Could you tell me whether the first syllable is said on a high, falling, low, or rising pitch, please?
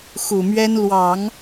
low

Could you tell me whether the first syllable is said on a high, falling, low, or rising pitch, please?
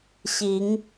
rising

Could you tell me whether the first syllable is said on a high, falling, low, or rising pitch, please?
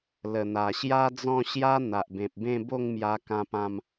low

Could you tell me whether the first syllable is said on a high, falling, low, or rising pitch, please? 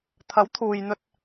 rising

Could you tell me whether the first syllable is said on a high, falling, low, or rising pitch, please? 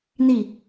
falling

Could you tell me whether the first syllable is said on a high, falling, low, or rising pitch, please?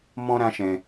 high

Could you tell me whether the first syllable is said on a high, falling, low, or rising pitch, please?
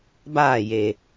falling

